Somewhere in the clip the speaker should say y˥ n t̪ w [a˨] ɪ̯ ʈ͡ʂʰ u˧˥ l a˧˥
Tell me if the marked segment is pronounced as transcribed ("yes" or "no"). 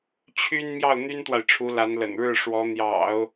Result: yes